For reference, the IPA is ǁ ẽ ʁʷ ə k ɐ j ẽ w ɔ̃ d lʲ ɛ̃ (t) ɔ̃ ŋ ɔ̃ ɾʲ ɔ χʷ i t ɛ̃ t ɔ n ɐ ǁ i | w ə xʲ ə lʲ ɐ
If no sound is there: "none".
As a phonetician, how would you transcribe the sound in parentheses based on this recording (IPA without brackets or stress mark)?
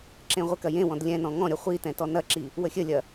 n